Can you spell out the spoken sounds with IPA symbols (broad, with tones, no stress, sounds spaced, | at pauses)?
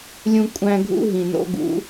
lʲ ũ˦ kʷʼ æ̃˦ ɡʱ ṵ˦ ɦ ĩ˨ n o̰˦ ɡ ṵ˨˦